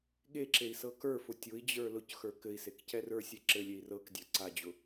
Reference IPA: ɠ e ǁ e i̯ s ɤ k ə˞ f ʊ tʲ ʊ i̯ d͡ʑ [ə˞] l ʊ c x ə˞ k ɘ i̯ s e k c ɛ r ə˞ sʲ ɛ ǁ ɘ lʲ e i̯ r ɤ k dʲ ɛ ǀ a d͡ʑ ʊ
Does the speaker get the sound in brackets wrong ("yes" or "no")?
no